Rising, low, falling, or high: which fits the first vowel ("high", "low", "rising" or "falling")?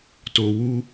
low